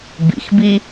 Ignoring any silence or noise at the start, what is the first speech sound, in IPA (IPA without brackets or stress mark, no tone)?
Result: b